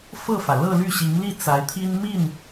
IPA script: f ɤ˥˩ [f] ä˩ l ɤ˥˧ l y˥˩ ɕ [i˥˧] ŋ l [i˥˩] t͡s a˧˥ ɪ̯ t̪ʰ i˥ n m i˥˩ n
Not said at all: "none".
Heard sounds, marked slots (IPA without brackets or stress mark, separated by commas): f, i˧˥, i˥˩